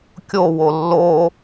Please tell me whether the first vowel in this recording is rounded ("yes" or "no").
yes